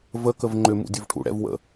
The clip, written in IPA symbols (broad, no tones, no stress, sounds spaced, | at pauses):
v ə k ə v ŋ͡ǃ ʏ m ṵ dʲ u v ʈʰ ṵ ɽ ɛ̰ v w ə̰